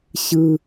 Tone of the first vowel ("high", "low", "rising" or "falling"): high